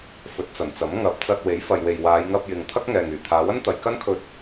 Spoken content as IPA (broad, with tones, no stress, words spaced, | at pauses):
fɵ˨˥t̚t͡sɐ˨˩nt͡sɐ˨˥m ŋɐ˨˥p̚t͡sɐ˧t̚ we˨˥jfɐ˨jwe˨j waː˨˧jŋɐ˧p̚jɪ˨ŋt̪ʰɐ˥k̚ ŋɛː˨ŋyː˨˩t̪ʰaː˨˧ wɐ˥nt̪ɐ˨jkɐ˥nkʰɵ˧t̚